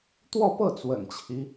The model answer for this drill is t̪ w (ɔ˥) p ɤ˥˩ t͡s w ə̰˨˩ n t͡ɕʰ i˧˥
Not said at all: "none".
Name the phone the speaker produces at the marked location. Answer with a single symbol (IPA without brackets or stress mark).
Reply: ɔ˥˧